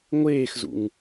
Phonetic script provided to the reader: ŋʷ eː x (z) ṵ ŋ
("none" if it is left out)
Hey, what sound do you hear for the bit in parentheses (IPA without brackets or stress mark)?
z